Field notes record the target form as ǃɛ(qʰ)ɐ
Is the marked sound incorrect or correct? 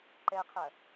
correct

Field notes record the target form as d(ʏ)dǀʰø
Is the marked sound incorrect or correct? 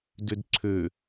correct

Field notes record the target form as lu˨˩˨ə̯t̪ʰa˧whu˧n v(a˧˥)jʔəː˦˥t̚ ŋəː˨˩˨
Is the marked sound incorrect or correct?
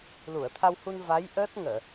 correct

